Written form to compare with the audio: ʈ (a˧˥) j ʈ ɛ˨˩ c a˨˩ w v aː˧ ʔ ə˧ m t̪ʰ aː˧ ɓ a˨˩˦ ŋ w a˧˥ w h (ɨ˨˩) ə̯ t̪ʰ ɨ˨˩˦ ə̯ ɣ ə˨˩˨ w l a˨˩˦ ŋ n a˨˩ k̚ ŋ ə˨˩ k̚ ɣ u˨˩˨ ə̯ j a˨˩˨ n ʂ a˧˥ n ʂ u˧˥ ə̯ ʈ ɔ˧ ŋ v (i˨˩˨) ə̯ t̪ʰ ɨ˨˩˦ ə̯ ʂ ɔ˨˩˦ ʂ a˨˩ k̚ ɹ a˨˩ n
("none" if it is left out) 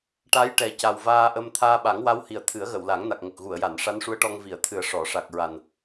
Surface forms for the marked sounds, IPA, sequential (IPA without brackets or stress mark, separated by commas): a˧˥, i˨˩, i˨˩˨